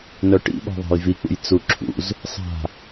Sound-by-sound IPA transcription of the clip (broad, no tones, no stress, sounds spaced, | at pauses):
n œ ʈ ḭ ɓ ɔ̤ ðˤ a̤ j v i k͡p ṵ j t͡s u ǁʰ ṵ z | sˤ a̤